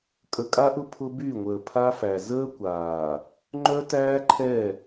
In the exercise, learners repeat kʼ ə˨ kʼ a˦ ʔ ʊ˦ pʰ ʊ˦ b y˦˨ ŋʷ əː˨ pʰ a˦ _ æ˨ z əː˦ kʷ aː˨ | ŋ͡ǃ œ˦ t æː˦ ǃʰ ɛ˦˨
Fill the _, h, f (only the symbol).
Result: f